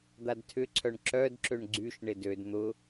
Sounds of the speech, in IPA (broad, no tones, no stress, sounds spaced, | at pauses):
d̪ a d tʰ ʏ ǀʰ œ ɳ ǁ œ d ǁ ø ɳ ɡ͡ǀ y ʃ ɳ ɪ d ø d n̪ ʊ